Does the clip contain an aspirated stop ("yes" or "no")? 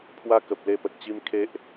yes